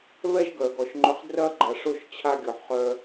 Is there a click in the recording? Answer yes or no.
yes